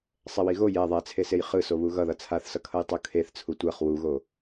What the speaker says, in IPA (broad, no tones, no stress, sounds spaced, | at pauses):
sˤ ɛ w i ɣ o j ɛ ðˤ ɛ t͡sʰ e s e j χ ɯ s o β u ɣ ʌ ð ʌ t͡sʰ a θ s ʌ kʰ ʌ j tˤ u kʰ e θ t͡sʰ u tʷ a χ w u ɣ o